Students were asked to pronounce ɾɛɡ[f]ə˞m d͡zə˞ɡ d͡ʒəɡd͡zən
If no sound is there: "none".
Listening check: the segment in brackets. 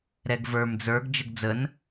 v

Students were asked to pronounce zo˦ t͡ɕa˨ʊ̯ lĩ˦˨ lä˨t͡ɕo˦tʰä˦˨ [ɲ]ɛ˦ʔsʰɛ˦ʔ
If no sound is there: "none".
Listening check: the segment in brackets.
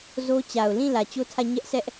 ɲ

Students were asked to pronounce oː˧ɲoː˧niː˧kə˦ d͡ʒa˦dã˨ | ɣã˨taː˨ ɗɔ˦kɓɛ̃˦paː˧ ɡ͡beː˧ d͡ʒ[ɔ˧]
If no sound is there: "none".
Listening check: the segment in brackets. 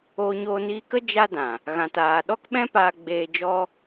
ɔ˦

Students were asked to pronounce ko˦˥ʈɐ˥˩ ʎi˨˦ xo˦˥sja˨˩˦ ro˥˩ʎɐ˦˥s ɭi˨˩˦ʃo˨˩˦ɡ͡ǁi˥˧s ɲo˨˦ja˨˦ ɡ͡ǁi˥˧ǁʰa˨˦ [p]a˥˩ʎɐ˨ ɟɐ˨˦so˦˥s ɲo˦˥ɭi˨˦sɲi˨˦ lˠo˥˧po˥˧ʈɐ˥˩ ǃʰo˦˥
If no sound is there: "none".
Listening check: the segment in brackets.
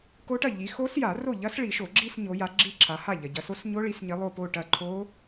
h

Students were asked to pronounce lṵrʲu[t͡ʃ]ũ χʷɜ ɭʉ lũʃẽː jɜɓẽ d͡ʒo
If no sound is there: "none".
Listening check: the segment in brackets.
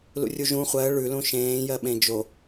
ʒ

